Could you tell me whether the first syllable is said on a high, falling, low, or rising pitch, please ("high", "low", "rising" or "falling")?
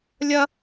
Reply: high